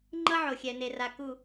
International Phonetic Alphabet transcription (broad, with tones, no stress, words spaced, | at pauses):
ŋ͡ǃʌ˦ʕo˨xʲɛ˨ne˨ ra˨ku˨